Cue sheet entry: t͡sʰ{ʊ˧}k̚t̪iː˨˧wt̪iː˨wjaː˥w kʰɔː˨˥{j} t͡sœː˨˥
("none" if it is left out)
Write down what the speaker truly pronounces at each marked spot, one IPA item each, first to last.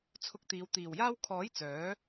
ʊ˧, j

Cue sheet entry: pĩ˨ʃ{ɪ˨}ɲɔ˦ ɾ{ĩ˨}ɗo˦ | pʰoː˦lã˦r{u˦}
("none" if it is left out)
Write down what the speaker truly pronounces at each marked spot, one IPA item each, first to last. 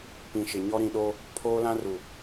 ɪ˨, ĩ˨, u˨

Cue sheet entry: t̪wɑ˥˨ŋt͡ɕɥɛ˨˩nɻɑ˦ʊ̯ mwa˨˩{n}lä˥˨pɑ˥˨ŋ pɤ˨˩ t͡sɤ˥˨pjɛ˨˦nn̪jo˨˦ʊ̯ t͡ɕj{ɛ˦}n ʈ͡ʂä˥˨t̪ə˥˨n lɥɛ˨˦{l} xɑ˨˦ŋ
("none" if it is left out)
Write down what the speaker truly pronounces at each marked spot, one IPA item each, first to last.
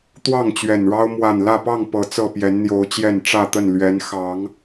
n, ɛ˨˩, n

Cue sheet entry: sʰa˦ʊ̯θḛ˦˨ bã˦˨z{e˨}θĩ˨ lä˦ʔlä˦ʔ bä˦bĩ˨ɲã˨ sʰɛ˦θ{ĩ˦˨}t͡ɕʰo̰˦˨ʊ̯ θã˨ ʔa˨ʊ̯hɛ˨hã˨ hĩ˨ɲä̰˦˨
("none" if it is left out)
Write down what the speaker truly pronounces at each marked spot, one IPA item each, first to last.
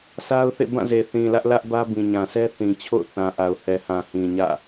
e˨, ĩ˨

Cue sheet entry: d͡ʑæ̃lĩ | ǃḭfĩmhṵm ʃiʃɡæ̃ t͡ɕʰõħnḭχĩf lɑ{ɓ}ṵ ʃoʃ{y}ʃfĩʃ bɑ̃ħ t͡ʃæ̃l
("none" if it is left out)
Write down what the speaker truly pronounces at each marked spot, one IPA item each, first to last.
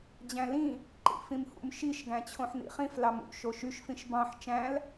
m, y

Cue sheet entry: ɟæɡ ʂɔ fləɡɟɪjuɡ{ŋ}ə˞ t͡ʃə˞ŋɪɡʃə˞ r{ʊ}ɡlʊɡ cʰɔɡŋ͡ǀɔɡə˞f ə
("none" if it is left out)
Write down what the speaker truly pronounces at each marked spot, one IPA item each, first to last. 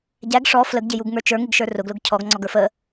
ŋ, ʊ

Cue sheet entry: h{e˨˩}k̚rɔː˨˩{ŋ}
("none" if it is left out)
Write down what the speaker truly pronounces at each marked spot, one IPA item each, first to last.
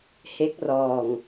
e˦˥, ŋ

